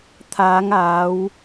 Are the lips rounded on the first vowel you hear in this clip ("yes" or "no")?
no